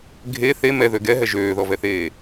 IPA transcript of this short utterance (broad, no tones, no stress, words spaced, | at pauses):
ɡʱe θe mɛðø ɡɛɦɛ ʒøːðɔvɛθeː